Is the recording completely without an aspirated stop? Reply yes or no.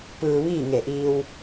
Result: yes